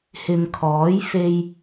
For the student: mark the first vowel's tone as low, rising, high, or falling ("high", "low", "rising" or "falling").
low